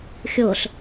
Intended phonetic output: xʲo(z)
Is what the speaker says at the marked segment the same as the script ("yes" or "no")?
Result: no